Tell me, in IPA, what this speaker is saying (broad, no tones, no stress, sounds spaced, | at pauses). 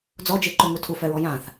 d͡z ɔ d͡ʒ e ǃ ø ŋ u tʰ u f ɛ ɹ ɔ j ã θ